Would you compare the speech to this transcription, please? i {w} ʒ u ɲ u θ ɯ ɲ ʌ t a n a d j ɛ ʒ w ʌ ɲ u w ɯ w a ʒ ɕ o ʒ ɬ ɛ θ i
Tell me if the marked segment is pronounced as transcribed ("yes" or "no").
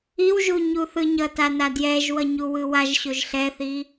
yes